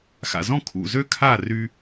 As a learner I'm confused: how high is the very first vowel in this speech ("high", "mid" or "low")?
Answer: low